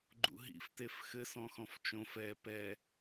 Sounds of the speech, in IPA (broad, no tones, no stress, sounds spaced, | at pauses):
ɡ͡ǃ ṵ ɦ ḭ f t e f x ɘ s ɔ̃ x ɔ̃ f t͡ʃ õ f ɛ p ɛ